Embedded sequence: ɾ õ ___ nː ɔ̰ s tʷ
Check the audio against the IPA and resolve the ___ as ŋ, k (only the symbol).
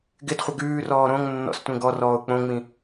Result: ŋ